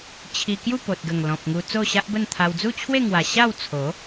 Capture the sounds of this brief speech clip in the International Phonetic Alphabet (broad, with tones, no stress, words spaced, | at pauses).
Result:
t͡ɕʰi˧ kju˥˧po˨t̚ɡə˨˩ŋ lɔ̃˨p̚ŋu˧ t͡so˥˧ɕa˦ʔbə˥˧nt̪ʰa˧w d͡zu˥˧t͡ɕʰwe˥˧ŋwa˨˩ ɕa˥˧wt͡sʰo˨˦